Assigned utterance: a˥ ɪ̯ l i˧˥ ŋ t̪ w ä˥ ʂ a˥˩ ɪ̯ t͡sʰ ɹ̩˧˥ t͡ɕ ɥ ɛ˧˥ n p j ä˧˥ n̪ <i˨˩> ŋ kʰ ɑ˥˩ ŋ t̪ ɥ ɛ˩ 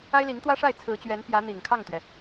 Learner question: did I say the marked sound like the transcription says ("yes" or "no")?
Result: yes